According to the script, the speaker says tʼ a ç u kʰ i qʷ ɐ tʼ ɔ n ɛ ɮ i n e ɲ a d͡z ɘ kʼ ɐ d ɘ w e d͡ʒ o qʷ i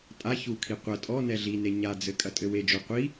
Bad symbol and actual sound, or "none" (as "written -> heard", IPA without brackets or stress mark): d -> tʼ